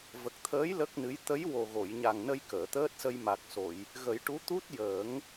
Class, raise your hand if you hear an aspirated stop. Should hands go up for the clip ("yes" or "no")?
yes